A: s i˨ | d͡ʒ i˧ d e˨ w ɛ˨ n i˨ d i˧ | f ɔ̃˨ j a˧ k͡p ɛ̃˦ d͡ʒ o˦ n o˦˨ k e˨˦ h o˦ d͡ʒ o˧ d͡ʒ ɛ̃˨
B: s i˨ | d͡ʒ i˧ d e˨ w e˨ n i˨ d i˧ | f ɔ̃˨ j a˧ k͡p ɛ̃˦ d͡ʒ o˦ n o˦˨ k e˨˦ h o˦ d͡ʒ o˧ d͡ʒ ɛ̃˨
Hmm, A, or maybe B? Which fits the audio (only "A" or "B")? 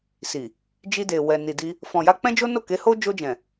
A